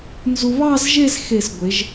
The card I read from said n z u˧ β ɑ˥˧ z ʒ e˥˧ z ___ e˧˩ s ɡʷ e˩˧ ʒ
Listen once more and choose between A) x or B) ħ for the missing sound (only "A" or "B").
A